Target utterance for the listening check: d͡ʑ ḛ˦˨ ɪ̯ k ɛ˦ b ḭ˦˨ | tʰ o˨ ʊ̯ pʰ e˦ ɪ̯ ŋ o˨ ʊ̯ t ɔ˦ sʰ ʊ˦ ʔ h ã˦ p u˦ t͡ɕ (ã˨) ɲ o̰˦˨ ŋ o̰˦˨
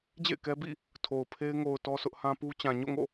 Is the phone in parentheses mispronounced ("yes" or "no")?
no